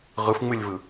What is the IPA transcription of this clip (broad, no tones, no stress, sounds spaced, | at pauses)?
ʁ ɯ f ŋ͡m ɨ lʲ v ɯ